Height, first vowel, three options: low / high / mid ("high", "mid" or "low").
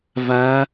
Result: low